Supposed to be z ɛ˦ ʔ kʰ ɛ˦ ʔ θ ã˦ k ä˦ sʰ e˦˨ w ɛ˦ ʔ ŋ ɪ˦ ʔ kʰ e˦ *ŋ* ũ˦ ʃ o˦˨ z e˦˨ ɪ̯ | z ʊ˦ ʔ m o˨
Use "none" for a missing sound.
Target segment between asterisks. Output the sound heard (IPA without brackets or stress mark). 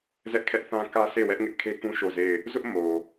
k